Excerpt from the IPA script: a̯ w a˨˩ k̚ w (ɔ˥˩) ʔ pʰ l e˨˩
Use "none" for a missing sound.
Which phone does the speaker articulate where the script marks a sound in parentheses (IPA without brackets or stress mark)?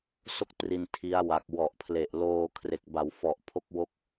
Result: ɔ˨˩